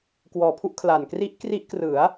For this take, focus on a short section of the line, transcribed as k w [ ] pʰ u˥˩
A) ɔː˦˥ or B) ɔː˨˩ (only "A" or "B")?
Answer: B